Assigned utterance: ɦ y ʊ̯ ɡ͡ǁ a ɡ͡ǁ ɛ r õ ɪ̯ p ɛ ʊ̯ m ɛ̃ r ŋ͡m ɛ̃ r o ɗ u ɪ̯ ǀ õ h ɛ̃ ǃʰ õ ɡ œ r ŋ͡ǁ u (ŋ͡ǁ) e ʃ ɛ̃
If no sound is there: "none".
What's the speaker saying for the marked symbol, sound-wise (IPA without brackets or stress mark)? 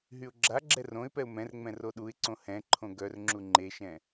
ŋ͡ǃ